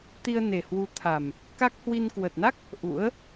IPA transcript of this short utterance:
t̪ i˧ ə̯ n e˨˩ h w u˨˦ t̪ʰ a˨˩ m | k a˦˥ k̚ h w i˧ n k w ə˨˩ t̚ n a˦˥ k̚ | ʔ ṵ˧˥ ə̯

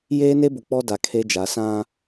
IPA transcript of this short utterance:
j eː˦ n e˦ b ʊ˨ k͡p ɔ˦ d a˨ kʰ e˦ d͡ʒ a˨˦ s ã˦

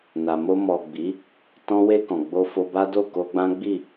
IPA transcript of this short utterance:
n a˨ m o˧ m ɔ˨ ɡ͡b i˨˦ | t ɔ̃˧ w e˧ k ɔ̃˨ ɡ͡b o˧ f o˧ b a˦ d o˦˨ k o˧ ɡ͡b ã˦ ɡ͡b i˦˨

